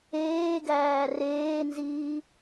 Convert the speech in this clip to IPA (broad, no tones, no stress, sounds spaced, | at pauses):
eː ɡ æː r eː n z iː